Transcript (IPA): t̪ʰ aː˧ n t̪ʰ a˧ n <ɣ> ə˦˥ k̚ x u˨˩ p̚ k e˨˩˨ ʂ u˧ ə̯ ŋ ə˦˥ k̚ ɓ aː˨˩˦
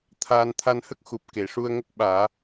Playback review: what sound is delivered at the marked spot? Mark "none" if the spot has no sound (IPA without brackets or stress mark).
h